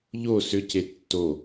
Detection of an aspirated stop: absent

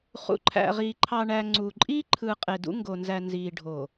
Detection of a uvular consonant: present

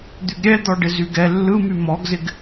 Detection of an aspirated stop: absent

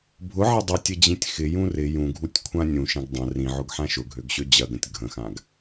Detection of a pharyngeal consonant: present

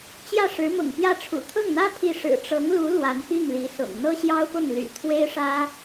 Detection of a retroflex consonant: present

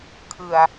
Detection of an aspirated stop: present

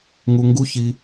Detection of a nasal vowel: absent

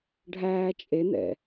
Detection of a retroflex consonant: present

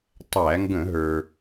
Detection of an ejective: absent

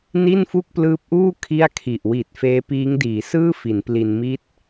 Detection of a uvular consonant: absent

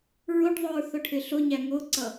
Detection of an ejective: absent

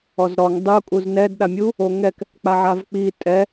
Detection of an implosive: present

